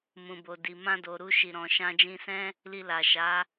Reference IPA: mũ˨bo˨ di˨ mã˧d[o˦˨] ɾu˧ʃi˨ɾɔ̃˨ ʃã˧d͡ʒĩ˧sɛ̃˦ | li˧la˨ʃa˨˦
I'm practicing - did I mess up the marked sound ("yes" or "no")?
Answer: yes